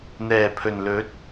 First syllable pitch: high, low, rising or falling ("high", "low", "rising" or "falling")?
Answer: low